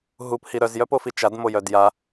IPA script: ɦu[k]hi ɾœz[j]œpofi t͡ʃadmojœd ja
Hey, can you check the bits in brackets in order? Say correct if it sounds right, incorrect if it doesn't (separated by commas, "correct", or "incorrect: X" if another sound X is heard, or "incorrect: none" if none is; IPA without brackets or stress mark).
incorrect: p, correct